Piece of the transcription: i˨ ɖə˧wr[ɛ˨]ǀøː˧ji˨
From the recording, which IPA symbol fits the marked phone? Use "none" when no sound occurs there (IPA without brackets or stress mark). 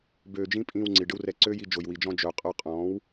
ɛ˨